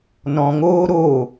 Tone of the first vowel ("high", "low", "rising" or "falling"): low